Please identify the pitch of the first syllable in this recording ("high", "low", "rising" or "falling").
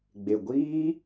low